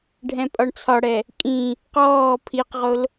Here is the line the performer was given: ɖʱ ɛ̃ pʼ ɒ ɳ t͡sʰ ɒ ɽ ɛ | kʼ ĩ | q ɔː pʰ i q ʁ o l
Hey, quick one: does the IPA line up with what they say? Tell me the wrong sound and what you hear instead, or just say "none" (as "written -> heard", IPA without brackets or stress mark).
none